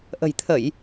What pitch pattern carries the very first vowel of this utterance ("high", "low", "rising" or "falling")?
low